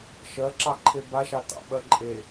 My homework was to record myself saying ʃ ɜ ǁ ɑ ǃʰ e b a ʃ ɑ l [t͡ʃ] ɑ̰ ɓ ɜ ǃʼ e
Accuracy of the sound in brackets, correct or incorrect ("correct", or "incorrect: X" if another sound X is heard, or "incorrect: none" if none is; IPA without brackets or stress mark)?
incorrect: t